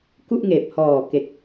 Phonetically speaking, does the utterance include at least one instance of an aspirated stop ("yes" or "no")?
no